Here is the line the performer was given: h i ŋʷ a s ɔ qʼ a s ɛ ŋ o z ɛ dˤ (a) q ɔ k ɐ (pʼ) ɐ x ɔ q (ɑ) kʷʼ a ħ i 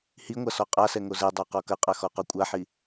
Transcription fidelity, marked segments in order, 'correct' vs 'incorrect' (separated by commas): correct, incorrect, incorrect